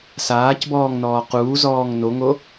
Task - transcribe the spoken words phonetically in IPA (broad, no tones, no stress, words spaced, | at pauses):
saːcbɔːŋnɔː quːzɔːŋ noŋo